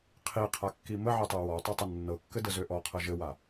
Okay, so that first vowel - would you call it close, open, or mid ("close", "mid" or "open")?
close